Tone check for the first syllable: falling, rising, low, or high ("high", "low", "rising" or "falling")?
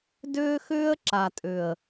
high